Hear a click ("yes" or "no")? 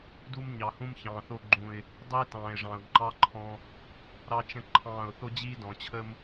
yes